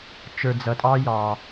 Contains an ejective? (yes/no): yes